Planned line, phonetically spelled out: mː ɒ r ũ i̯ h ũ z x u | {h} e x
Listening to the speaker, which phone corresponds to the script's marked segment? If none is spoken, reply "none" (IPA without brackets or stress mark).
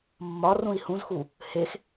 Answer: h